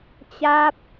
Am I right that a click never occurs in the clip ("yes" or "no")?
yes